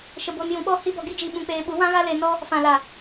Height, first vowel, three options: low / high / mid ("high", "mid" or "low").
mid